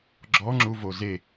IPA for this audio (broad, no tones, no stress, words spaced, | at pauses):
ɡ͡ǁɔŋ͡ǁuvo ze